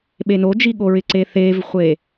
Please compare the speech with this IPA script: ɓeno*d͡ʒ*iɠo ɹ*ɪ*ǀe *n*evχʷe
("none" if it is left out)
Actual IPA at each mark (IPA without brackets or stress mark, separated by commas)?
d͡ʒ, ɪ, θ